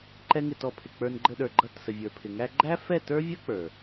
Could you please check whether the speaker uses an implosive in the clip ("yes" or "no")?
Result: yes